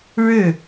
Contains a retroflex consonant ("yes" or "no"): yes